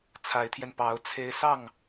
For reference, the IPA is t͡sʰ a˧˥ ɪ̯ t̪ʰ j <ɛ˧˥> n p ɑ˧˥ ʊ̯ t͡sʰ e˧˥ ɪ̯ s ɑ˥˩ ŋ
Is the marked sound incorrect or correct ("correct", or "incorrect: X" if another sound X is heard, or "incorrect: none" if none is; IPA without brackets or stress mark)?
incorrect: ɛ˧